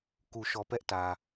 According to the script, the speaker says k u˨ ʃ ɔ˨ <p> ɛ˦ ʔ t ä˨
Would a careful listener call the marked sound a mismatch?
no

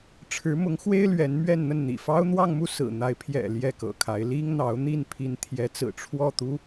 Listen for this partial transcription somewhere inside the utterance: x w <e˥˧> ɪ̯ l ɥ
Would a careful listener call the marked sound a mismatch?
yes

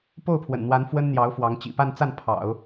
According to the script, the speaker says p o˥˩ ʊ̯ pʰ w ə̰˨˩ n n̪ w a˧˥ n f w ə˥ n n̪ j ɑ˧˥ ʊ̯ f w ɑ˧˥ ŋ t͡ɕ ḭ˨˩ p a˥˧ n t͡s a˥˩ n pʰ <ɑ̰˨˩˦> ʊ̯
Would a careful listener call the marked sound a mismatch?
no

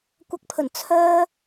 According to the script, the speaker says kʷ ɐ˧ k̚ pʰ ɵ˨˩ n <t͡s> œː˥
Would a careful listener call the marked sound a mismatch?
yes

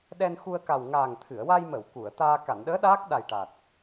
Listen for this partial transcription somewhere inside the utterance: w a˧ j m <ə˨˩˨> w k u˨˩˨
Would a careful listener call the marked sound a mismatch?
no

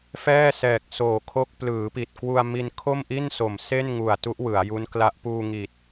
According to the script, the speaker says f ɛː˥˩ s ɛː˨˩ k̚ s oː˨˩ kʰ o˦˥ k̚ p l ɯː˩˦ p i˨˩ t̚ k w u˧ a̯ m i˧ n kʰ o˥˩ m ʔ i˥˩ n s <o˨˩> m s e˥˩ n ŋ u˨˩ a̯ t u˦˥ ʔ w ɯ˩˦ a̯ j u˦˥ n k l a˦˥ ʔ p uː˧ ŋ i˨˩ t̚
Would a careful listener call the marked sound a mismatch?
no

